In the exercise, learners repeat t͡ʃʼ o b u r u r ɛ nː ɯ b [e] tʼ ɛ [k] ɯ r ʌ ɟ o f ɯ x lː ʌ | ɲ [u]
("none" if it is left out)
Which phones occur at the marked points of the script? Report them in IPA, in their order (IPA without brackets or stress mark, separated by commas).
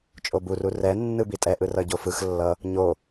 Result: i, ʔ, o